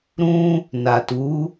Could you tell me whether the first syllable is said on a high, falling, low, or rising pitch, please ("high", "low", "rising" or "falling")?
high